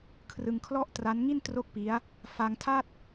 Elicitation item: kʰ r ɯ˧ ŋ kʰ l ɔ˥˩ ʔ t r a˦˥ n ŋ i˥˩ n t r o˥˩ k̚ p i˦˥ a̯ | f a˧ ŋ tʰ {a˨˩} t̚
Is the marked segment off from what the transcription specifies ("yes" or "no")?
yes